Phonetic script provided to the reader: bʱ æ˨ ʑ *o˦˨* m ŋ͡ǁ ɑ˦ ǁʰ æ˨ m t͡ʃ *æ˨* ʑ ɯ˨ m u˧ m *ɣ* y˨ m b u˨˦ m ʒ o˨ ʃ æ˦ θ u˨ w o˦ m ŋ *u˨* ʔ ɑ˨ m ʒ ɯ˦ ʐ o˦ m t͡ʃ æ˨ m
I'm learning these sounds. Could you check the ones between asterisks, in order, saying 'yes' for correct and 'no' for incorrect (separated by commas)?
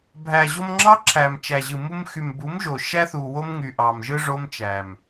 no, yes, no, no